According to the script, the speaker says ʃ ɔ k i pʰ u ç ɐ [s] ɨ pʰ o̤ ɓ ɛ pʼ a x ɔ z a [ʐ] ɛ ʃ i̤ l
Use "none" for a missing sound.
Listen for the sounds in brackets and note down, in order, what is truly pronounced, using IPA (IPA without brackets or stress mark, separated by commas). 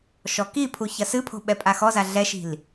s, ɮ